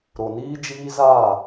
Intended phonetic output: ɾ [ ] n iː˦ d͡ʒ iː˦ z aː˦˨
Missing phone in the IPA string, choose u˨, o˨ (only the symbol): o˨